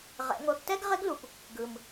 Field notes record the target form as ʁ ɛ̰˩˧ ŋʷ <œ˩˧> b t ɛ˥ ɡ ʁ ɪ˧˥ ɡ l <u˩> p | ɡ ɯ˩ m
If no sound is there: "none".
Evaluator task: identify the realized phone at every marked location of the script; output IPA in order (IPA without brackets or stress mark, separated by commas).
œ˩˧, u˩